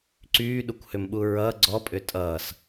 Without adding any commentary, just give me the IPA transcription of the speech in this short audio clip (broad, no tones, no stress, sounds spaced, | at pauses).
ǀ yː ɗ u kʷ h ʏ m ɓ u ɹ ʌː ɡ͡ǀ ɔ pʼ ʏ tʼ ʌː s